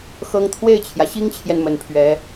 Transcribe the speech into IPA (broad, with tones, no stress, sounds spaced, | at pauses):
x ɤ˥ ŋ t̪ʰ w e˥˩ ɪ̯ t͡ɕʰ j ä˩ ɕ i˥ ŋ t͡ɕʰ j ɛ˨ n m ə˨˩ n pʰ ɥ ɛ˧˥